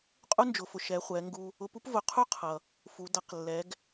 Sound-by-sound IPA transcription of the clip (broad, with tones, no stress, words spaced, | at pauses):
qʼu˥nd͡ʒʊ˩˧fʊ˩ʃɛ˩˧ χʷɛ˩˧ŋɡu˧ | ʊ˧pu˥p vʊ˩˧ qʰu˥qʰʌ˩ | fu˩˧ dʌ˩˧qlːɛ˩˧ɡ